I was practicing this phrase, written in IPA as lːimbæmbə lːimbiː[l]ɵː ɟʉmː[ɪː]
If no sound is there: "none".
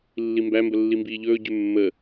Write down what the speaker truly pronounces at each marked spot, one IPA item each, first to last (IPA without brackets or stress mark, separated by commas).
ʎ, əː